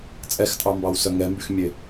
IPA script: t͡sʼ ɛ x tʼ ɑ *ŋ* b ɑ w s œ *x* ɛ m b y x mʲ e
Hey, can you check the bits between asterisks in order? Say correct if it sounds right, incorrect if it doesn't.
incorrect: m, incorrect: ŋ

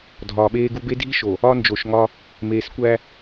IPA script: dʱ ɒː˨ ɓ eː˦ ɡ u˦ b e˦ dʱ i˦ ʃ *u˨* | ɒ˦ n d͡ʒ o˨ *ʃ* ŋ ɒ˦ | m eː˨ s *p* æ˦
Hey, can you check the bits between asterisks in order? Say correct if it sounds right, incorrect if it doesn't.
incorrect: o˨, correct, incorrect: kʷ

